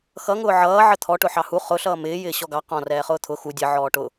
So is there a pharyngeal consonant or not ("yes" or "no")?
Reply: yes